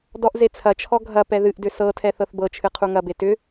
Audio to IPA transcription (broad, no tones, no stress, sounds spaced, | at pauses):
d ɔ ʔ z e t͡sʰ ɐ t͡ʃʰ ɔ ɡʱ ɐ p ɛ ð ɨ ʔ d ʏ s ɤ tʰ ɛ θ ɤ θ b ɤ t͡ʃʰ ɨ qʰ u ŋ ɐ b e t ʏ